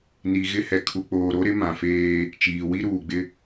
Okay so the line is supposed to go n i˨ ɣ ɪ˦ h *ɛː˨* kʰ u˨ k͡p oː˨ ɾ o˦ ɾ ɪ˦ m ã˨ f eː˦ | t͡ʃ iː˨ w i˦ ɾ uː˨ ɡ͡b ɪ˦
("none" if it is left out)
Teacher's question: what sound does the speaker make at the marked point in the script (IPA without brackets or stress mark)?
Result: ɛ˨